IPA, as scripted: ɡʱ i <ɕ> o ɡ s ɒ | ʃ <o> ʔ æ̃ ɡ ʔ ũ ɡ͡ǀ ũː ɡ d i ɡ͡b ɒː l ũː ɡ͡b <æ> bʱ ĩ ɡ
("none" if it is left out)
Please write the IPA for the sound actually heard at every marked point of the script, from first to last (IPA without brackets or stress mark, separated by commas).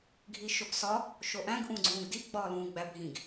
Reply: ʃ, o, æ